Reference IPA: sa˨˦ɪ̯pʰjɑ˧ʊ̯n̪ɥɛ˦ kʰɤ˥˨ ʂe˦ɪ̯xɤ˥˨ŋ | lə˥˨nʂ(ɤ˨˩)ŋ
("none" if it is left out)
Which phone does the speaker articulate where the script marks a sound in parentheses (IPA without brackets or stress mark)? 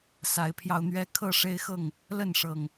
ɤ˨˩